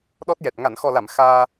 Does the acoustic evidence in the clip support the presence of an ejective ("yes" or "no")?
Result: no